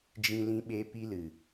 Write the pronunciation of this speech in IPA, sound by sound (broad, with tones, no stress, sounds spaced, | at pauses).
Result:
d͡ʒ ĩ˧ l ĩ˧ ɓ e˧ p i˧ l ɨ˨